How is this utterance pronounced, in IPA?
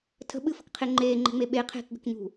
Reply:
tʰ ə̤ ɓ ɨ f ə̤ k qʰ e ŋ͡ǃ eː ŋ͡ǃ e̤ ŋ͡m e ɓ e qʰ e̤ k ɡ ə̤ k ɲ ṳ

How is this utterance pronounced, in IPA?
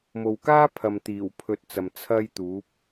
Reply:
m o˨ w k aː˥ pʰ ɐ˨ m t̪ iː˨˩ w pʰ ɵ˧ t̚ t͡s ɐ˨ m t͡sʰ ɐ˥ j t̪ uː˨˥ p̚

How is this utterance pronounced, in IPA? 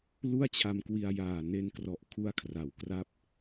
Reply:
l u˥˩ a̯ t͡ɕʰ a˧ m k w i˧ a̯ j aː˨˩ n e˧ n k r ɔ˨˩ ʔ kʰ u˦˥ a̯ kʰ r a˩˦ w k r a˦˥ p̚

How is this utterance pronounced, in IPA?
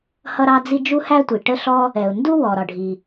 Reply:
h ʌ˥ ɾ ɑ˥ d͡z i˥ d͡ʒ u˥ h æ˥ tʷ i˩ ʈ ə˥ ɬ ɔ˥ | ɛ˩ ʊ̯ n d u˥ w ɔ˩ ɾ ɒ˩ ɖʱ i˩

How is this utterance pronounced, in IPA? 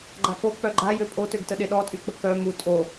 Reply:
ɡ͡ǃ a k o k͡p œ ɡ͡ǃ a j ø pʼ o t ø ɡ t ə ɗ e ɗ ɔ tʼ y k͡p ə k œ m u tʼ o

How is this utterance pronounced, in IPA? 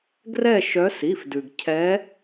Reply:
ɡ r ɛ˦˨ ʃ œ˨˦ s i˩˧˩ f d ʉ˩ ɡ cʰ ɛ˨˦

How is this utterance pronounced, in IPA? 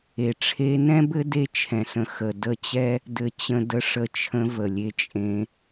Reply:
e˨ ʈ͡ʂʰ e˧ n ɛ̃˦ b ɘ˦ d e˧ t͡ʃʰ ɛ̃˨ s ə̃˨ x ə˨ d ə˦˨ t͡ɕ ɛ˦ | d ɘ˨ t͡ɕ ə̃˧ d ə˧ ʂ ə˧ t͡ʃʰ ə̃˧ v ə˨ lʲ e˧ t͡ʃʼ ẽ˧

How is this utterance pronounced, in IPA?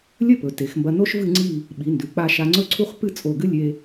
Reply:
lʲ ɵ˥˧ p ɵ˩˧ t e˩˧ x m b ɐ˧ n o˥ ʃ v ɨ˥˧ ŋ͡ǀ i˥˧ | ɓ i˩˧ n d ʉ˩˧ k͡p a˧ ʃ a˧ ŋ͡ǀ ɵ˥˧ ǀʰ u˥ χ p ɨ˥˧ t͡sʼ o˧˩ ɡ ɨ˥ lʲ e˧

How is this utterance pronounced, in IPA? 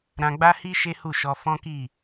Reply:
ɾ ã˧ ɡ͡b a˦ h i˦ ʃ e˦ h u˦˨ ʃ ɔ˧ f ɔ̃˦ k i˦˨

